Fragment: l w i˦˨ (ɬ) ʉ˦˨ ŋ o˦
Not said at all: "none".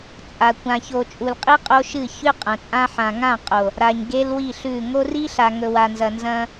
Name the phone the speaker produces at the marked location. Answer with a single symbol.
ɬ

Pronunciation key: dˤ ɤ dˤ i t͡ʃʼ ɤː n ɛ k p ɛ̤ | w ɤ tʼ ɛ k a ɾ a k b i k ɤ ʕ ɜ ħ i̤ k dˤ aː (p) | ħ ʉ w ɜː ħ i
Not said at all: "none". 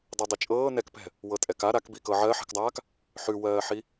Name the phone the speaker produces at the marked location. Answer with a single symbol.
k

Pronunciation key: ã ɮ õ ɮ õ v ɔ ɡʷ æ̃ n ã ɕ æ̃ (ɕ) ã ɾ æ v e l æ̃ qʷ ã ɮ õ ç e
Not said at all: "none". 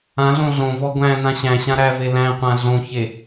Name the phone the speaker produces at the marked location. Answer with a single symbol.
ɕ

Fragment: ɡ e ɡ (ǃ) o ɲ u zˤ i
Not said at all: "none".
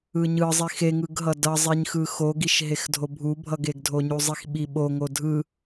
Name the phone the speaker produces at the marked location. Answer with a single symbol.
dʱ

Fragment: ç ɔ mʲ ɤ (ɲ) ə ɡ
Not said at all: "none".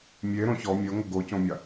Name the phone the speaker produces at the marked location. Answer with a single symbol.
ŋ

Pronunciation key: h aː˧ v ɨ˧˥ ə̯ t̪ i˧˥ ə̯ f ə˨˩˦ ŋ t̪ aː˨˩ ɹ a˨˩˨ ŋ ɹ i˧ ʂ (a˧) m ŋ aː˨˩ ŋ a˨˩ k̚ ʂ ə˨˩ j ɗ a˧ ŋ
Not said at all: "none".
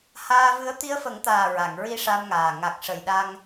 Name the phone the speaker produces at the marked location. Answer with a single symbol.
a˧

